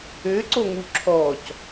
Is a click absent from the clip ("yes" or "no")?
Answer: no